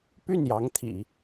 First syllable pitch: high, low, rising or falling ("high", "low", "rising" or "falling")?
falling